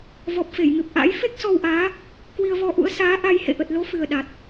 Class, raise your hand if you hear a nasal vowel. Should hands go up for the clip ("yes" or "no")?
no